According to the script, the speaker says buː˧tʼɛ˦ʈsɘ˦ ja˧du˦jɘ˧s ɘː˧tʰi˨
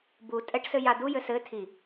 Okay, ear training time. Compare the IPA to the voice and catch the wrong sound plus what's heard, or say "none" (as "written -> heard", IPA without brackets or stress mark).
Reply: none